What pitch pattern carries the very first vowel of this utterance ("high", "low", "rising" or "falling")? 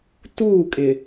falling